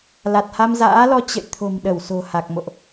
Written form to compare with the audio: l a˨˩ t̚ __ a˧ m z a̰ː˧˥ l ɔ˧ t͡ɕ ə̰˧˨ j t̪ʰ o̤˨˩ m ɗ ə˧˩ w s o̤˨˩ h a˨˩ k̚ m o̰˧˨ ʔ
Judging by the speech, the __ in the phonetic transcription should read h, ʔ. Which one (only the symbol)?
h